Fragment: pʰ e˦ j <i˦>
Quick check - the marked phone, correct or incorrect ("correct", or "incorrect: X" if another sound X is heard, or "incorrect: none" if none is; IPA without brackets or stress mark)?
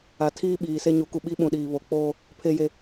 incorrect: e˦